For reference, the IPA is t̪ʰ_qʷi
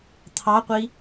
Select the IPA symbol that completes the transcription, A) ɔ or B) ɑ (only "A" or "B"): B